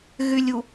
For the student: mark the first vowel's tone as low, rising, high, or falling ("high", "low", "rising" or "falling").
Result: low